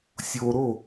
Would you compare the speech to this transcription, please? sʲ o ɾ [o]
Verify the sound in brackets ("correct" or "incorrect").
correct